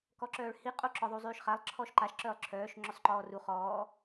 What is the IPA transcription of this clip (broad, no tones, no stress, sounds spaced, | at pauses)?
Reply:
k ɔ ǁ œː ɭ h i qʼ o ǁ ɔ ðˤ u zˤ yː ʃ χ a lˠ ǁʰ ɔ ʃ ǃ a ʃ ǁ œː lˠ ǁʰ œː ʃ ŋ͡ǁ ɵ sˤ ǃ ɔː r u χ ɔː